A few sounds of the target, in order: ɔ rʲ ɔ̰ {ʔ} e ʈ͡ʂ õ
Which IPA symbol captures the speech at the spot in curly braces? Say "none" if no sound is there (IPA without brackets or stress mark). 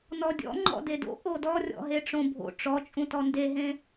ɦ